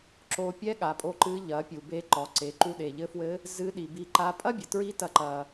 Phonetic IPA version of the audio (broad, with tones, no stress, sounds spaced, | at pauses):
ǁ o˧ pʲ ɛ˥ ɠ a˩ pʼ o˧ ǃ ɨ˧˥ ʎ ɐ˩˧ pʲ u˩ b e˧ ǃ ɔ˩˧ ǀ e˩˧ ǃ u˧ ɗ e˩ ʎ ɘ˧˥ f w ɘ˧˥ | z ɨ˧˥ ɗ i˩ b i˧ ǃ a˧˥ pʼ ɐ˥ bʲ ɘ˩ t ɹ i˧˥ t ɐ˧ ǃ ɐ˩